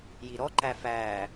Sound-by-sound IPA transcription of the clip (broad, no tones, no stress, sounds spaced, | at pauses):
j i ɾ ɔ ǃ æ f æː